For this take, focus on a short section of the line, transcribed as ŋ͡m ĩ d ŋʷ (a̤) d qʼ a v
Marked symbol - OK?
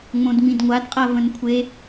no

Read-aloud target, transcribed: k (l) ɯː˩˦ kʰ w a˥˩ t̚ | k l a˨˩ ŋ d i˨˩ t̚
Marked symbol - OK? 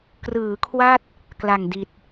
no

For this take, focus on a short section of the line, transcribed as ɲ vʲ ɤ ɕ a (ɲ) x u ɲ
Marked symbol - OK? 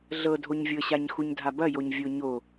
yes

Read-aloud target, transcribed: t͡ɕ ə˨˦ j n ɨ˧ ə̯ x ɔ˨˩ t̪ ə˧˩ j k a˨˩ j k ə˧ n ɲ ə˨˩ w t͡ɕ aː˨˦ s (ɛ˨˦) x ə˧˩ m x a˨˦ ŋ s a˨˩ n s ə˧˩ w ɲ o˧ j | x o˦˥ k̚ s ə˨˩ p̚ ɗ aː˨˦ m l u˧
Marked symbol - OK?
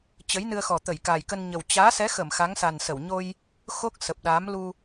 yes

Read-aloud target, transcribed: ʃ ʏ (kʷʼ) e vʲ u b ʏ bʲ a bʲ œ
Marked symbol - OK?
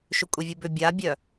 yes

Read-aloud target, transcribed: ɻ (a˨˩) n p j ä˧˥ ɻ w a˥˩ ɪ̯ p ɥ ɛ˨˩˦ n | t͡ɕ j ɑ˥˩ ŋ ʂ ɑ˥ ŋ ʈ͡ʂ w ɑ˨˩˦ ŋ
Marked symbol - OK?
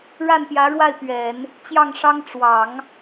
no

